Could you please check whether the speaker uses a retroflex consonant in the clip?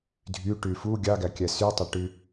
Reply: yes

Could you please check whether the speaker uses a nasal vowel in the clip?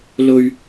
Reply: no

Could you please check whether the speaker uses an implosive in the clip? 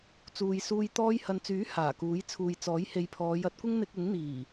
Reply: no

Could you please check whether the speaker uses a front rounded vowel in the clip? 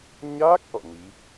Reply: no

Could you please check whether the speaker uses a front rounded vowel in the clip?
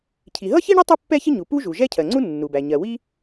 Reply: no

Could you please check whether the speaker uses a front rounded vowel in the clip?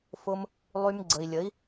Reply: yes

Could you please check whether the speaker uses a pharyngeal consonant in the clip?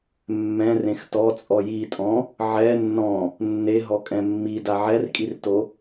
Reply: yes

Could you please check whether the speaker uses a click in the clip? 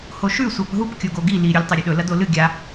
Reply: no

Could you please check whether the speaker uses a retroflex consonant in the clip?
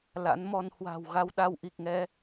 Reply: no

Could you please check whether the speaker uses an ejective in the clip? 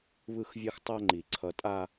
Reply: yes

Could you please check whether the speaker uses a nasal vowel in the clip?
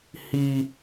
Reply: no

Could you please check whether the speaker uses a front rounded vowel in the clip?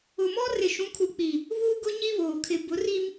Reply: no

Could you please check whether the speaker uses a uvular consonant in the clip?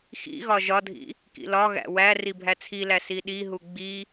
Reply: no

